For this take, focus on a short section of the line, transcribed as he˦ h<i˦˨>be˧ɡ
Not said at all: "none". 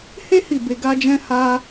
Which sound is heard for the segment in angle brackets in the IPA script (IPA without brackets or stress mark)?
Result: i˦˨